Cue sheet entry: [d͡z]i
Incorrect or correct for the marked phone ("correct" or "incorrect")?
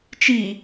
incorrect